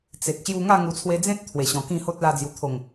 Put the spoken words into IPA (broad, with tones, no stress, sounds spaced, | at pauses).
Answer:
t͡s e˨ k̚ ɕ j u˧ ŋ a˥˧ ŋ u˧ t͡sʰ w e˦ d͡z ẽ˦ t̚ t̪ʰ w e˨˩ ɕ ɔ̃˨˩ k ĩ˥˧ h o˦ t̚ l a˧ d͡z j u˨˩ t̪ʰ o˨˩ ŋ